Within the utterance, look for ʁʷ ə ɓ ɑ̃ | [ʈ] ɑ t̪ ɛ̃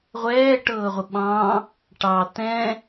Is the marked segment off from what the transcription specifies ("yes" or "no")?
no